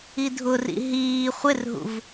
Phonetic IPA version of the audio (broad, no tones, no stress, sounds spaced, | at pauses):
i dʱ ʊ r ḭ ɦ iː χʷ ɪ r ɦ ṵ v